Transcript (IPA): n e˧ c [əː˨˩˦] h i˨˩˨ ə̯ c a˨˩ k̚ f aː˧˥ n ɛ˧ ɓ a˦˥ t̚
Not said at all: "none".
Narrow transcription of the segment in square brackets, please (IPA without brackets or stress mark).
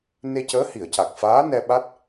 əː˧˥